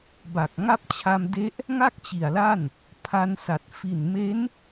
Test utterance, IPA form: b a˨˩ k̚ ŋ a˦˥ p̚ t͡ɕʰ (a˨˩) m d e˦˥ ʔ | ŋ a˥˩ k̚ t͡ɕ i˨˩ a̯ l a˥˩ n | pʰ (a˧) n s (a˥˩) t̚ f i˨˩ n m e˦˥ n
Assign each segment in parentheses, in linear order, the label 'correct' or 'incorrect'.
incorrect: a˧, correct, incorrect: a˨˩

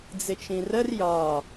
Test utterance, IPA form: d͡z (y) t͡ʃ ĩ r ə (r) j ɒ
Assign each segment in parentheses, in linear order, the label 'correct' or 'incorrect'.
incorrect: ɪ, correct

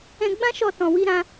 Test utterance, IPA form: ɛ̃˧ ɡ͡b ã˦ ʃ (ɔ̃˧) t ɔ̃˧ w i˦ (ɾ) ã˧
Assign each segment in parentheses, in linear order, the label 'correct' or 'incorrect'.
incorrect: ɔ˧, correct

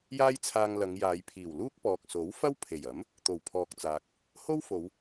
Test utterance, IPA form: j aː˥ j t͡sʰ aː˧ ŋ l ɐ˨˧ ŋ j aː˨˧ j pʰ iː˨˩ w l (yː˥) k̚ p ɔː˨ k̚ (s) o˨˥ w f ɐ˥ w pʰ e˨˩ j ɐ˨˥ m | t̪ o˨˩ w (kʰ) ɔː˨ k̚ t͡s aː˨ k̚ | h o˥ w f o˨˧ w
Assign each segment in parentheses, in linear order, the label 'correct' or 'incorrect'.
incorrect: uː˥, correct, incorrect: pʰ

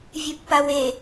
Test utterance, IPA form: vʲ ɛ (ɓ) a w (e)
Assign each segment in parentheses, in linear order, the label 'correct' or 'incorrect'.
incorrect: pː, correct

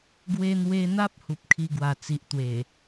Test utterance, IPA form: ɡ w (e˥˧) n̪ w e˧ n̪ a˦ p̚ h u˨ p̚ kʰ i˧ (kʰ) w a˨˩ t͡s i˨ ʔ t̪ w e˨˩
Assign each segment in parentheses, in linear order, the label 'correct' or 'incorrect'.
incorrect: e˧, incorrect: ɡ

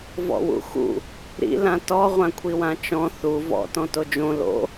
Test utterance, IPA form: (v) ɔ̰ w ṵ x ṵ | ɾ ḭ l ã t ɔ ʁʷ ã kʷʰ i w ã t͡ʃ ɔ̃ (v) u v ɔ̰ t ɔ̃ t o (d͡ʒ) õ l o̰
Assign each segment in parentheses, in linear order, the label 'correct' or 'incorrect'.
correct, incorrect: θ, correct

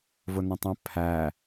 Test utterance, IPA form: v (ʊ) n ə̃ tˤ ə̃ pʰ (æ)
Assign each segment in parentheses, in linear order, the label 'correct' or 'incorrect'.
correct, correct

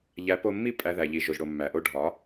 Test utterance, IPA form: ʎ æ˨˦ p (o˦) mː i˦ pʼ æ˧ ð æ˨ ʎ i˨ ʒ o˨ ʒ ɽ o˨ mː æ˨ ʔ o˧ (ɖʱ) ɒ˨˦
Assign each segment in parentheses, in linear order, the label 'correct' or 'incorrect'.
incorrect: o˧, correct

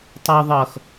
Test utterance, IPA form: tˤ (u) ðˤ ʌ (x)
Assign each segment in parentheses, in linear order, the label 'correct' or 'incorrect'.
correct, correct

